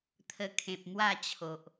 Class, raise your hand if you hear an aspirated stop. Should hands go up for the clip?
yes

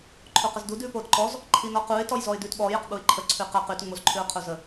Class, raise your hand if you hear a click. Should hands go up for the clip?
yes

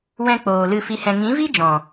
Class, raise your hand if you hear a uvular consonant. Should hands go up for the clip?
no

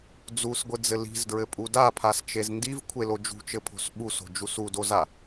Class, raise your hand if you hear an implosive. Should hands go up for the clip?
yes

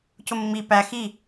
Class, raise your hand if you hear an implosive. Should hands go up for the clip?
no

